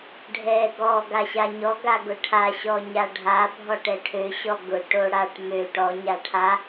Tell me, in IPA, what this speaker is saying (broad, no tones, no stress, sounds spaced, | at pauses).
ɖʱ ɛ ɡ ɔ ɡ a ɕ a ɲ ɔ ɡ a ɡ ʊ ʈʰ a ɕ ɔ ɲ a ɖʱ a bʱ ɔ ʈ ɛ ʈʰ ø ɕ ɔ ɡ ʊ ʈ o ɽ a ʈ m ø ʈ ɔ ɲ a ʈʰ a